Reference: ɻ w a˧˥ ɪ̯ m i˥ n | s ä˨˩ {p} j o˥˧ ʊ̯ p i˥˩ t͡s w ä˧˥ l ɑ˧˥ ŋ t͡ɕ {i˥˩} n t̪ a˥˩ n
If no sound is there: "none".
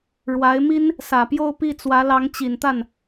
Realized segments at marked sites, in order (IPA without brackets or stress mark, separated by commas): p, i˨˩